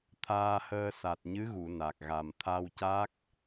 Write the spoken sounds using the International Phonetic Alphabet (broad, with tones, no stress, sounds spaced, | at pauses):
t̪ʰ aː˧ h əː˧ s a˨˩ t̚ ɲ ɨ˧˥ ɣ u˨˩˨ n a˨˩ k̚ ɣ a˨˩ m t̪ʰ a˧ w c a˦˥ k̚